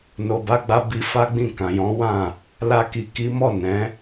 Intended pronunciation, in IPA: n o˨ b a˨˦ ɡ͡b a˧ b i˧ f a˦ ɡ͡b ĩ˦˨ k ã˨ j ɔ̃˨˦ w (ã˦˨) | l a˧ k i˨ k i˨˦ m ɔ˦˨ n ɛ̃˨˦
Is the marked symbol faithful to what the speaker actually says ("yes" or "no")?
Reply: yes